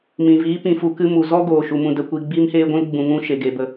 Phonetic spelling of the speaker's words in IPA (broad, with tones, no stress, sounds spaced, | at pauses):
m ĩ˨ v iː˨˦ p ĩ˨ f u˧ k ɨ˧ m u˨ z ɔ˦ ɡ oː˨ ʃ u˨ m ũ˧ d ə˧ kʷ i˧ ɡ͡b iː˧ m h eː˧ ɡʷ ũ˧ l ɡ͡b ũ˧ ŋ ũ˦ ʃ e˨ ɡ e˨ b ə˨